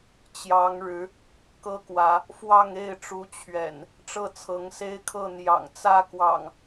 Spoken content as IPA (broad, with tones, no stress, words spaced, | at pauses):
t͡ɕjɑ˨˦ŋɻɻ̩˨˦ | kɤ˦kwä˨˦ | fwɑ˥˨ŋe˥˨ɪ̯ʈ͡ʂu˨˦ t͡ɕʰɥɛ̰˨˩n | ʈ͡ʂɤ˥˨t͡sʰɤ˨˦ŋ se˦ɪ̯kʰɤ˥˨ n̪jɑ̰˨˩ŋ t͡sä˥˨kwɑ̰˨˩ŋ